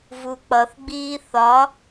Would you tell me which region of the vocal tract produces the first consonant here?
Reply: lips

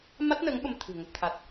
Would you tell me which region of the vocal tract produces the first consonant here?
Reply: lips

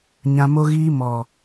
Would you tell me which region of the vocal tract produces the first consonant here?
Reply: palate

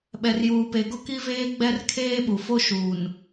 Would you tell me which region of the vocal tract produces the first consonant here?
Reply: lips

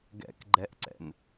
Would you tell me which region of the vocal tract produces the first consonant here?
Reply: velum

